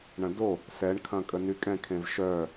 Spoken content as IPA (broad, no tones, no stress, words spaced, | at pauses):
ɳɐ̃do | sɛɳkʰɐ̃kʼə nykʼɛ̃kʰẽv ʃœ